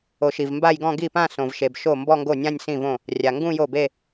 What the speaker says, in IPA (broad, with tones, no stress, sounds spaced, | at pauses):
o˨˩˦ ʃ i˩ v m b a˥˧ j ɡ ɔ̃˥˧ ɡ i˥˩ p ã˥˧ s õ˩ v ʃ e˩ b ʃ o˥˩ m b ɔ˥˧ ŋ ɡ o˥˩ nʲ ã˥˧ nʲ s ĩ˥˩ v õ˥˩ | rʲ a˩ ŋ ɡ ũ˥˧ j o˥˩ b e˥˧